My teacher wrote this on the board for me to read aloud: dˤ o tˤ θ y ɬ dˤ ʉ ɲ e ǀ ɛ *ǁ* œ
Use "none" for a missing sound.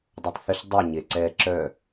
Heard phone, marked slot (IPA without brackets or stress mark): ǁ